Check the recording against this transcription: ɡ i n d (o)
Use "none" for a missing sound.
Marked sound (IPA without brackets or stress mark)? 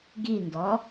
ɔ